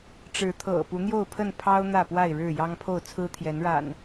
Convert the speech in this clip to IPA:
ʈ͡ʂ ɻ̩˨˦ t̪ʰ ɤ̰˨˩ p u˨˦ n̪ j o˥˨ ʊ̯ pʰ ə˥˨ n pʰ ɑ˦ ʊ̯ n̪ ä˥˨ p w a˥˨ ɪ̯ ɻ ɻ̩˥˨ j ɑ˦ ŋ pʰ o˥˨ ʊ̯ t͡sʰ ɹ̩˦ t̪ʰ j ɛ˨˦ n ɻ a̰˨˩ n

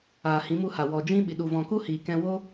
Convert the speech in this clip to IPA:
aː˨ h ĩ˨˦ m u˧ h a˨ w ɔ˨ d͡ʒ ĩ˦ ɓ i˨ ɗ u˨ v ɔ̃˨ k u˦ h iː˨ k ɛ̃˧ w o˦

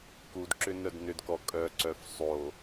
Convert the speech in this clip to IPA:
k u d ǁ ʏ n œ d n ʏ d k ɔ kʼ œ ǀ œ f sˤ o

